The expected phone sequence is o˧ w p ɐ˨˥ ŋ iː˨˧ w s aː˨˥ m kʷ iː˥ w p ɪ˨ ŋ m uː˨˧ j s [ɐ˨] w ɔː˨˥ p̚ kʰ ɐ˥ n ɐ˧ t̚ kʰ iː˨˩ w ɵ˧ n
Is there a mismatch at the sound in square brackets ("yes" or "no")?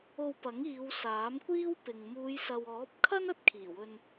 no